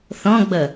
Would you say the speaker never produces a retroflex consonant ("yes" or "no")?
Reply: yes